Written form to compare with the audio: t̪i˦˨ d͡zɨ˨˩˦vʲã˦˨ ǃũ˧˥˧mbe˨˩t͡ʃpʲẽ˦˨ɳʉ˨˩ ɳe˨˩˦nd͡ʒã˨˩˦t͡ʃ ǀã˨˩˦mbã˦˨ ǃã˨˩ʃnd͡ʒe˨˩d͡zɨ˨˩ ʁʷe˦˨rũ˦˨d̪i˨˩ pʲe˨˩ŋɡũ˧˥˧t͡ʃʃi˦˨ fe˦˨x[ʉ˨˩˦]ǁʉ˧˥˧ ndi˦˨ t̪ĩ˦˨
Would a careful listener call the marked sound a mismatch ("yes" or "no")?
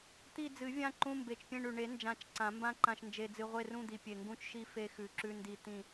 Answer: no